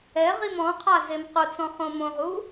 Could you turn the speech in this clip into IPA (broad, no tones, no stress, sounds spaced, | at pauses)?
ɛ ʁ i m ɔ̃ qʰ a z e m q ʊ t͡s ɔ̃ χ õ m õ ʁ u